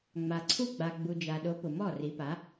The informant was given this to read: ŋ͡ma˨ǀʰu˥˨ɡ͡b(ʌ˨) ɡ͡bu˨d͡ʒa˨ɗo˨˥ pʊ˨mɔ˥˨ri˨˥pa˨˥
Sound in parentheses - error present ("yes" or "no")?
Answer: yes